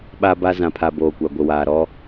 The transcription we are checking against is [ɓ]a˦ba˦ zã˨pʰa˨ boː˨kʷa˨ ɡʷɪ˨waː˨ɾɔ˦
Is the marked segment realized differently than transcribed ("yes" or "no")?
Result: no